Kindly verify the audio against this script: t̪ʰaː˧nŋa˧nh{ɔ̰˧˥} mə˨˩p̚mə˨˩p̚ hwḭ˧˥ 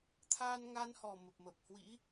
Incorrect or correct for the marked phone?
incorrect: ɔ˨˩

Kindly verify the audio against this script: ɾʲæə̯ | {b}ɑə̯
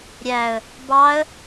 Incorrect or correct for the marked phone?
correct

